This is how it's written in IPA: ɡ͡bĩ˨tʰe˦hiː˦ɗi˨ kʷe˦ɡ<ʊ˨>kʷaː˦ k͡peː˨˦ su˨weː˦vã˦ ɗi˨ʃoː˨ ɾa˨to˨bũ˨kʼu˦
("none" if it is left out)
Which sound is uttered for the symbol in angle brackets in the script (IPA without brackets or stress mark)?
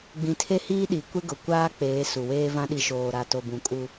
ʊ˨